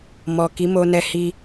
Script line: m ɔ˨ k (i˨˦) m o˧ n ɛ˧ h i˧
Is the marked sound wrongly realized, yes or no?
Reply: no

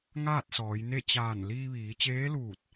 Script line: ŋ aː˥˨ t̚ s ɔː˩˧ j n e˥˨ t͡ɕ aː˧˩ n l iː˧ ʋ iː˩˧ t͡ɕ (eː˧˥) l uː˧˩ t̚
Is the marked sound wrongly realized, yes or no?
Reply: no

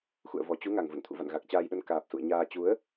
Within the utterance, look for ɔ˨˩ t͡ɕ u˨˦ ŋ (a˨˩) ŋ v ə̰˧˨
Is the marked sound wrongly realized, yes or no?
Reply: no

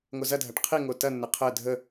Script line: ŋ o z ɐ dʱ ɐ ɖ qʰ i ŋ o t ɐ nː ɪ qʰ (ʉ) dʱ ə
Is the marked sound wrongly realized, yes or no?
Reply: yes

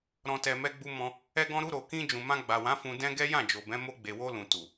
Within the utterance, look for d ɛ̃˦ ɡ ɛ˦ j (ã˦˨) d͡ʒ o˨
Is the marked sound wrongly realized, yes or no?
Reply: no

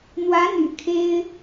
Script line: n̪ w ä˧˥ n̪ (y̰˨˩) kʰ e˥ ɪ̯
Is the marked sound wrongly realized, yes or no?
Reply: no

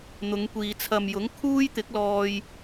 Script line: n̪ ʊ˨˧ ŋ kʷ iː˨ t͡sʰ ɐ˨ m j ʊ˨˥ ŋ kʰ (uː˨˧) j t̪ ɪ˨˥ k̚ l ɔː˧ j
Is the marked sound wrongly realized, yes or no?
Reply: yes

